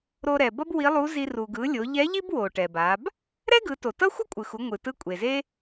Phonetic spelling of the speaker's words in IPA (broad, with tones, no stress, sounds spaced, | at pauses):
ɾ o˧ ɾ ɛ˩ b ʌ˥ b w i˧˥ lˠ u˧˥ z i˧ r u˩ ɡ ɯ˩˧ lʲ o˩˧ ʎ ɛ˧˥ ʎ i˥ b w o˩ ʈ ɛ˩ b a˩˧ b | ɾ ɛ˥ ɡ ɯ˩˧ t o˩ t ʌ˥ xʷ ʌ˥ kʷʼ ɯ˩ x u˩˧ ŋʷ ɯ˩ t ɯ˧˥ kʷʼ e˩ z e˥